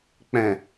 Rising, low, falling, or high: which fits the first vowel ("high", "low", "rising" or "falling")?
low